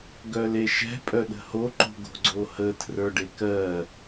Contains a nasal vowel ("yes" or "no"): no